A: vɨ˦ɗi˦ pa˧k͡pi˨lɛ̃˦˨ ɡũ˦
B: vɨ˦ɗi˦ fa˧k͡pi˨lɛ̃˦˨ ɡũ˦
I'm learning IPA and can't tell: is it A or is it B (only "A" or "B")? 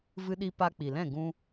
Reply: A